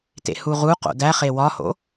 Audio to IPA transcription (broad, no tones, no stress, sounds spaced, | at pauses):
t ḛ h u ʁ u q o̰ d æ χ e w ɒ h o̰